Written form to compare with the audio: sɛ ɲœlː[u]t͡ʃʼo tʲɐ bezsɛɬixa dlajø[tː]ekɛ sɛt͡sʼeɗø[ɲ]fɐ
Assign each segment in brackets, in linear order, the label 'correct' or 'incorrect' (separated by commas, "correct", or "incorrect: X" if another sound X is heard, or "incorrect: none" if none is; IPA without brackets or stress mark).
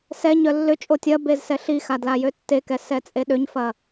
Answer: incorrect: ʏ, correct, correct